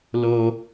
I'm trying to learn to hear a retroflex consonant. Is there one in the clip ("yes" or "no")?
no